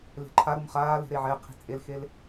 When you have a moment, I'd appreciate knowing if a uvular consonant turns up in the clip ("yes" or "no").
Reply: yes